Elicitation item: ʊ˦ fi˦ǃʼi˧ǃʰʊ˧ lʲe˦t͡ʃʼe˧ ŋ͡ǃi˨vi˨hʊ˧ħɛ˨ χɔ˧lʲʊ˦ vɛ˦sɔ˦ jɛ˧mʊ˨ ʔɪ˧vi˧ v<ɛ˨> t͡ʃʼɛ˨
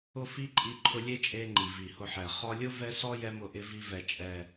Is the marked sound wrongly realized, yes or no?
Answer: no